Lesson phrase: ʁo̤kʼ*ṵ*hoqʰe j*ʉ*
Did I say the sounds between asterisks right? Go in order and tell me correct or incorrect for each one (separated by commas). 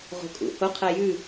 correct, correct